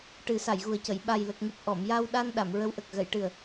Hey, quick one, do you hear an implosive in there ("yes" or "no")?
yes